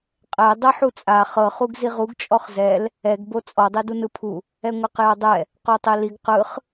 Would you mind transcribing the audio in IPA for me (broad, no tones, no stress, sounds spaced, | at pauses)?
qʼ ɛ dˤ ɛ ħ u t͡sʼ a χ ɤ χ u ɡ z i ʁ u ɡ t͡ʃʼ ɔ χ z ɛ l | ɛ ɡ b o t͡sʼ ɔ dˤ e d u n ɯ pʰ u | ɛ ŋʷ ɛ q j a dˤ ɛ | q o tˤ e l i ɡ q ɯ χ